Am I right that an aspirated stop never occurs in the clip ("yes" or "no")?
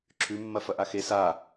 no